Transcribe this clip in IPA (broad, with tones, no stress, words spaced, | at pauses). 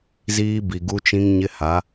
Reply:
ziː˦bi˨ɡu˦t͡ʃĩ˦ŋ ɲɪ˦ha˨˦